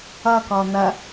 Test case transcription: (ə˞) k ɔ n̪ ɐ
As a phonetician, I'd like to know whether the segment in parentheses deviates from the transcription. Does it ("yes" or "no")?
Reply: yes